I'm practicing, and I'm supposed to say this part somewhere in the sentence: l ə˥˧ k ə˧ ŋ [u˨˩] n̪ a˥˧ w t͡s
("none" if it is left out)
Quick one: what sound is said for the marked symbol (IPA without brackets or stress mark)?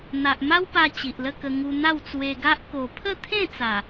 u˧